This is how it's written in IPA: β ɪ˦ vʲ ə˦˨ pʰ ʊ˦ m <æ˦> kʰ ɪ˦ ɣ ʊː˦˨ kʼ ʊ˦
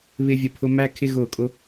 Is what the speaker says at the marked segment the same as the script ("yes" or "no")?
yes